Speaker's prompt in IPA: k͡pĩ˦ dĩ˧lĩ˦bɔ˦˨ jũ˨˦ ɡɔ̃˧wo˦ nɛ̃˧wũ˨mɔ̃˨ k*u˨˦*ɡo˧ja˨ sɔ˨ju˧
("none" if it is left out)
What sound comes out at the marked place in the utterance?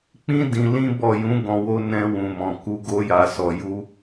u˨˦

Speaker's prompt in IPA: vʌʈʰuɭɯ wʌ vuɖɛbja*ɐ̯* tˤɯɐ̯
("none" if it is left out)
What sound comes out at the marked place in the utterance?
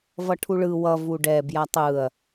none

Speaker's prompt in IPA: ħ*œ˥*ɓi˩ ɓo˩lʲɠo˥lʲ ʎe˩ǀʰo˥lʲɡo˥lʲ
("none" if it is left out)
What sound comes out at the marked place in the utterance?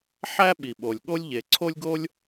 æ˥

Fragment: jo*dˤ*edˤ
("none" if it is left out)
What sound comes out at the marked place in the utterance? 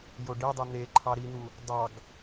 ɖ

